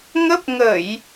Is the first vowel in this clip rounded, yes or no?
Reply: no